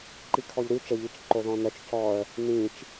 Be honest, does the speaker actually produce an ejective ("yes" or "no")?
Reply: no